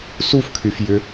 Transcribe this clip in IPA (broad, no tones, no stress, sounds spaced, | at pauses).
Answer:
s u f kʰ y f j ʏ